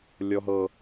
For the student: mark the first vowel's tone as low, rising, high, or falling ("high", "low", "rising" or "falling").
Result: high